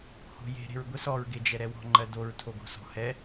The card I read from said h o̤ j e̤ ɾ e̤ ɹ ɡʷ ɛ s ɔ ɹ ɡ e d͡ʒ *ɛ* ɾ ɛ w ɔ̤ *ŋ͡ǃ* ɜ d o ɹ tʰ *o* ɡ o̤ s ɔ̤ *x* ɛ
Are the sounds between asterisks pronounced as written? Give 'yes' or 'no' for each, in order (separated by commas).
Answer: yes, yes, yes, no